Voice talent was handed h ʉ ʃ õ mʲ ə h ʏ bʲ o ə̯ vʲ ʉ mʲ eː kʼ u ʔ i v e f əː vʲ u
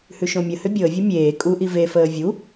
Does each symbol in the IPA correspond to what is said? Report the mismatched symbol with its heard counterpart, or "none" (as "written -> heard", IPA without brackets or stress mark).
none